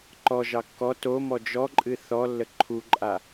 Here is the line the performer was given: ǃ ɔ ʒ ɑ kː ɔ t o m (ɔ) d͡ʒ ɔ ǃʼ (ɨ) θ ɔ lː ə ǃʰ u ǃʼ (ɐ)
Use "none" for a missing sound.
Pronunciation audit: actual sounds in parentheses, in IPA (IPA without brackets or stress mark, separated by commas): ɔ, ɨ, a